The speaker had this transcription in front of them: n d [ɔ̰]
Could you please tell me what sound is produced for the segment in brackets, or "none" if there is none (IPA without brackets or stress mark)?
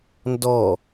ɔ